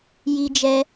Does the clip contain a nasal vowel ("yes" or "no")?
no